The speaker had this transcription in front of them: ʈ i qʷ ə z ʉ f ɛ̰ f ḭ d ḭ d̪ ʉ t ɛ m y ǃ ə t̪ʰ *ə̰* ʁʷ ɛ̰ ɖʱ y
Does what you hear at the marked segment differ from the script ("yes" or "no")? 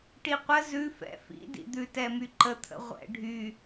no